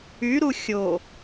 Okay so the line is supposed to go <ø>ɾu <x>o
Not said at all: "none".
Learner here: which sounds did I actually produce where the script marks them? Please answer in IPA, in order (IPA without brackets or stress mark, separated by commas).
y, xʲ